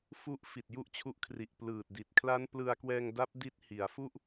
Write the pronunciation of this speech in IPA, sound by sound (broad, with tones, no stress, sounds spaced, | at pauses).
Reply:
f u˦˥ ʔ f i˨˩ t̚ j u˥˩ ʔ t͡ɕʰ u˦˥ ʔ kʰ r i˨˩ ʔ p l ɯː˨˩ t̚ d i˨˩ t̚ kʰ l a˦˥ n p l ɯ˧ a̯ k w ɛː˧ ŋ d a˦˥ p̚ d i˦˥ t̚ h i˩˦ a̯ f u˥˩ ʔ